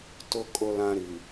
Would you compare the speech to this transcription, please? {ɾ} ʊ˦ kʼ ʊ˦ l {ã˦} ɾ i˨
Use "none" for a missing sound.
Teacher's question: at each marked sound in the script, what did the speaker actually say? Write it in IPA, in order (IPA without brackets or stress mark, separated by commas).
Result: t, ã˦